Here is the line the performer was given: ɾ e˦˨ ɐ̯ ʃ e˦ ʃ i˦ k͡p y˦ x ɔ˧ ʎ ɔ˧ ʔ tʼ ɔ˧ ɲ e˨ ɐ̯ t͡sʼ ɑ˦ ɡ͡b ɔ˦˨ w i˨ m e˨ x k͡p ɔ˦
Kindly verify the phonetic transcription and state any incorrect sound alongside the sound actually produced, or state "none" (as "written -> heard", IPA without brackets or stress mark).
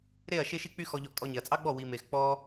none